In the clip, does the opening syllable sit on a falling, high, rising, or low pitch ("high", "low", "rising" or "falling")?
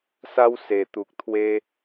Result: high